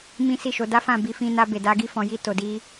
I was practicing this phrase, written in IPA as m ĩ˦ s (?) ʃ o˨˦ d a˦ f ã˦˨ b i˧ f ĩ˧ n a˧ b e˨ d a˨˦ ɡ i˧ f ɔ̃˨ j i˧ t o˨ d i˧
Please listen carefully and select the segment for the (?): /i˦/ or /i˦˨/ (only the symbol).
i˦˨